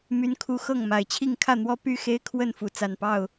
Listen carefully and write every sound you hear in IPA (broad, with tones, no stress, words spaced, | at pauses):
my˦nkʰu˦ xɤ˥˨ŋma˨˩ɪ̯t͡ɕʰi˥˨ŋ kʰä˥˨n̪wɔ˦ py˥˨xe˦ɪ̯ kʰwə˥˨n fu˨˦ t͡sa˨˩npɑ˥˨ʊ̯